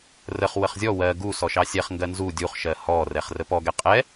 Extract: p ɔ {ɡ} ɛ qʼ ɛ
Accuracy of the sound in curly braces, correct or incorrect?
correct